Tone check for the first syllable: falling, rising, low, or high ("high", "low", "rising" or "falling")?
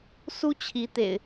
high